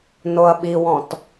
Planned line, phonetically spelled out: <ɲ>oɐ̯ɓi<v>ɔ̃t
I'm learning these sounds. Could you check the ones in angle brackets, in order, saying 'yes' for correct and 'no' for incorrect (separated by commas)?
no, no